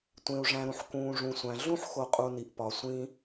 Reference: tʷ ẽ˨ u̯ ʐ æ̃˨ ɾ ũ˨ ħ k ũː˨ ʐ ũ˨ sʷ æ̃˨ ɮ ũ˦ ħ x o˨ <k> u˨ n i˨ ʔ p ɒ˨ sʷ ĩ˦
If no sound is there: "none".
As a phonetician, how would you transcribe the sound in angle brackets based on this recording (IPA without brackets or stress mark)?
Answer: qʼ